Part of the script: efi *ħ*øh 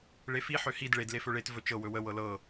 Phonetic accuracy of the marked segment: correct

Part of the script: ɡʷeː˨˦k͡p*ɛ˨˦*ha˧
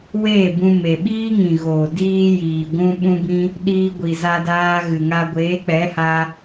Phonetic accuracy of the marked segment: correct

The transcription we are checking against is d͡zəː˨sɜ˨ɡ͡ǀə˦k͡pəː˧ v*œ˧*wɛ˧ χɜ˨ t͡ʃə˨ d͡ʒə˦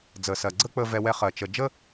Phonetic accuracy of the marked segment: incorrect: ɛ˧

